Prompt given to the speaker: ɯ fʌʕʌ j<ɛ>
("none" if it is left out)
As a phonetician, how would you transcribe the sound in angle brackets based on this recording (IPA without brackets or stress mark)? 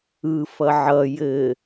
ɘ